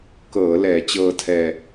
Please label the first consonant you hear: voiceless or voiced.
voiceless